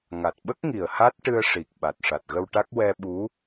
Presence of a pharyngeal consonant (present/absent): absent